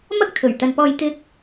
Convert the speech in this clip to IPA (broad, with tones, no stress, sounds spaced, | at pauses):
m ɐ˥ k̚ t̪ʰ ɵ˨˩ ɥ t̪ ɐ˨ n p ɔː˧ j t̪ ɪ˥ k̚